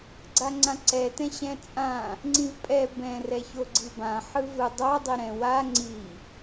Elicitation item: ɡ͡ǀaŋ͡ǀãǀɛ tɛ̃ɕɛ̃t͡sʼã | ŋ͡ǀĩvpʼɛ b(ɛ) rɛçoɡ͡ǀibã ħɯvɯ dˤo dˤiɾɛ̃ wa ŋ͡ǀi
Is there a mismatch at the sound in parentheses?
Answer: yes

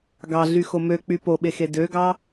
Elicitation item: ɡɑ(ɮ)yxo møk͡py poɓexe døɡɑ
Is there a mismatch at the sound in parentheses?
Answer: no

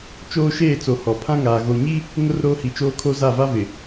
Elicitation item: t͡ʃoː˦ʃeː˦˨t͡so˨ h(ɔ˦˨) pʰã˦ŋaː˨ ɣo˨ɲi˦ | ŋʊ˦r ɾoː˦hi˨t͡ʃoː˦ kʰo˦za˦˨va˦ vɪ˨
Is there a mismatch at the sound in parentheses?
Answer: yes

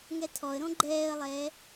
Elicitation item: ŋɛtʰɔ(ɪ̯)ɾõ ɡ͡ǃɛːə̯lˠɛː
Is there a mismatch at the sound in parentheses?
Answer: yes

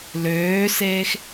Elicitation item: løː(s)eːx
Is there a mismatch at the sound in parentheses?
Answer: no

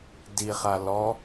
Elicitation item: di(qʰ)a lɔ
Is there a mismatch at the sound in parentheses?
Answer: yes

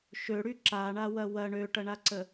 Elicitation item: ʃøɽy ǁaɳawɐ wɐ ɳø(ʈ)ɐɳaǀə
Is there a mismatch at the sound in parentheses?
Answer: no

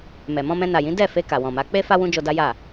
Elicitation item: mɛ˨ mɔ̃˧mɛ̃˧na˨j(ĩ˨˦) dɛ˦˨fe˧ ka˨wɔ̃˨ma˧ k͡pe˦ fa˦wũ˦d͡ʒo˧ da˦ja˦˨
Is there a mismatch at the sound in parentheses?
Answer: no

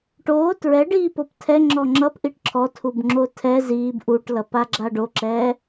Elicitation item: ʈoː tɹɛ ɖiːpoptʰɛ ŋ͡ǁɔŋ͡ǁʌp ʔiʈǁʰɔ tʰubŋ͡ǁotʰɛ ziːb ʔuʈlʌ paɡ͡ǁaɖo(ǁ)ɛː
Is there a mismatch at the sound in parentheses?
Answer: no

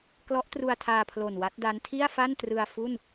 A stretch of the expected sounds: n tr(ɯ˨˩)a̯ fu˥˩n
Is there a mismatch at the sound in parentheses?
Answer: yes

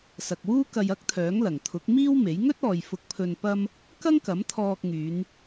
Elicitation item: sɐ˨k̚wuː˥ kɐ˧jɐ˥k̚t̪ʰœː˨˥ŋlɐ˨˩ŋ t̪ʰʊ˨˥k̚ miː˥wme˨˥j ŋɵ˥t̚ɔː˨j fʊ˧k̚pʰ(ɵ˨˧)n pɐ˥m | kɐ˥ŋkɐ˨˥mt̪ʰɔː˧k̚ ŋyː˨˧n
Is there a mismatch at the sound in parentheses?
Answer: yes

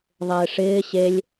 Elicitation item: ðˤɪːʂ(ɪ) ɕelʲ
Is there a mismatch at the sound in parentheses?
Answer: yes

